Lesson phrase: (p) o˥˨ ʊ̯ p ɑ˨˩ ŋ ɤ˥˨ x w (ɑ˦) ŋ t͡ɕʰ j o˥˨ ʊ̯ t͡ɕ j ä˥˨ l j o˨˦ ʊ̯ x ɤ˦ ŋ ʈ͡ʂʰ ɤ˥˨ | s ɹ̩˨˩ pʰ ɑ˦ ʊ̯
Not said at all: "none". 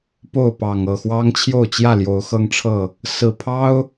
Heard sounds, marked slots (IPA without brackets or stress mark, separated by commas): p, ɑ˦